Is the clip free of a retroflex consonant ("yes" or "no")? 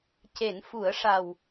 no